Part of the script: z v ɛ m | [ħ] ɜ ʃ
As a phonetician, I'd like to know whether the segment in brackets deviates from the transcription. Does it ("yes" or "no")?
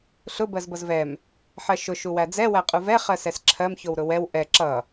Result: no